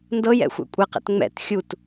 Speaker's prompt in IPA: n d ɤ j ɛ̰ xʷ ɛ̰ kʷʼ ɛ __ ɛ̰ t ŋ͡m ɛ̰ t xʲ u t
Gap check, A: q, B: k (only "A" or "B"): A